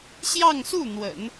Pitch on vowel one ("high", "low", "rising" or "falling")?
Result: falling